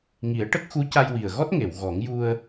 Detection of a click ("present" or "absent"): absent